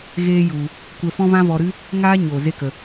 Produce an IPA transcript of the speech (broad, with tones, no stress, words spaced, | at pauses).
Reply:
ɣeː˦ju˧ | kʷɛ˧fɔ̃˦vã˦ vɔ˧ɾɨ˦ | ŋaː˦ ɲo˨ ze˦kə˧